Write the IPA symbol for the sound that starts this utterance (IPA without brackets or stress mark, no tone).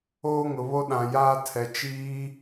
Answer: oː